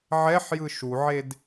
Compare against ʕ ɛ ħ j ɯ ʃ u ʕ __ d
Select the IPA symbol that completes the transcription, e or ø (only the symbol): e